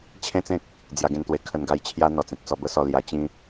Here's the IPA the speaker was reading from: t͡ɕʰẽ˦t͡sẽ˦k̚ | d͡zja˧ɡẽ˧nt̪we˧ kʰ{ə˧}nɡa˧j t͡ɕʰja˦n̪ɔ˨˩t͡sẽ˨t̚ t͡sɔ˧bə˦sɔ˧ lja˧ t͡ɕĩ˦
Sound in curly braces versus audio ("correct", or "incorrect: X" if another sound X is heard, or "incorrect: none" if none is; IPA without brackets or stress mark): correct